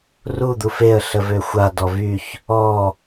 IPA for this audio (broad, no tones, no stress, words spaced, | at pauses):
ru d̪ufeə̯ ɬəvøxʷa dɔvyç | ɔ